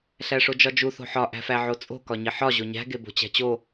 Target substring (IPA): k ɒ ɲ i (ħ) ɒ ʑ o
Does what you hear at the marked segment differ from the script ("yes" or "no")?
no